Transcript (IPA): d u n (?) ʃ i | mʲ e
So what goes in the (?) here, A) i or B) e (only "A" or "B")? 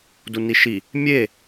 A